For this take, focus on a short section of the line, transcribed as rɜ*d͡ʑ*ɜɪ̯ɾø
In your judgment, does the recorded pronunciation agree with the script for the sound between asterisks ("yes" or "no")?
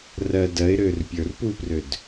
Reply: no